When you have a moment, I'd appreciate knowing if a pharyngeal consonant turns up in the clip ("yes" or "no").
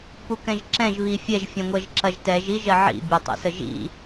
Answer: yes